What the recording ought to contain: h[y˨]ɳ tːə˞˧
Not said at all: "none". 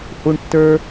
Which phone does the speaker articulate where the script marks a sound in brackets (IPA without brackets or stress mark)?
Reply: u˨